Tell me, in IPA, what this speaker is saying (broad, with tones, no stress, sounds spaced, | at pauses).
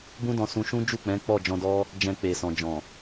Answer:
b ũ˦ d ɔ̃˧ s ũ˧ ʃ ũ˦ d͡ʒ u˦˨ k͡p ɛ̃˨˦ k͡p ɔ˦˨ d͡ʒ ɔ̃˧ d ɔ˦ | d͡ʒ ɛ̃˧ k͡p e˨ s ɔ̃˨ d͡ʒ ɔ̃˨